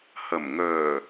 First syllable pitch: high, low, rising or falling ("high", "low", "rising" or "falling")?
low